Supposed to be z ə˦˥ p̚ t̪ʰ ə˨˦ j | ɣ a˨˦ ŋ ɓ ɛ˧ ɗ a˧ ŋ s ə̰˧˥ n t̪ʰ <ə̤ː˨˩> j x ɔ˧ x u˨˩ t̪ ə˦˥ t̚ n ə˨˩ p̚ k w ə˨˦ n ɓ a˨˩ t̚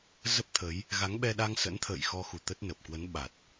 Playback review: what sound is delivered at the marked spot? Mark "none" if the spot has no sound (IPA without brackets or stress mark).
ə̰ː˧˨